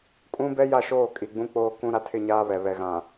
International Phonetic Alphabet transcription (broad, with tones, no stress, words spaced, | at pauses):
kʼũ˦ bɛ˦ja˦˨ʃoː˦˨ kʼi˨ɡ͡bũ˦k͡poː˦ kũ˦ ɾa˦tʰɪ˦˨ɲaː˦ βɛ˨ βɛ˨ɣã˨